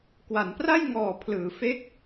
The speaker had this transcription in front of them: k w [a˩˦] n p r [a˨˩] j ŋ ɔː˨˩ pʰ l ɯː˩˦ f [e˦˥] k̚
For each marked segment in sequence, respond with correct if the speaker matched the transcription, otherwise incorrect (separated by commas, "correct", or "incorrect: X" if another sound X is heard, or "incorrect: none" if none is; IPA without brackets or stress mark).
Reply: correct, incorrect: a˥˩, correct